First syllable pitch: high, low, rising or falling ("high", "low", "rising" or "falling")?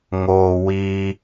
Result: high